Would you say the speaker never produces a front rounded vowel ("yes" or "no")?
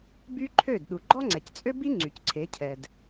no